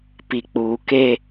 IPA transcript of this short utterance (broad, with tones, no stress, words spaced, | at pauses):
pi˨ k͡puː˨ke˦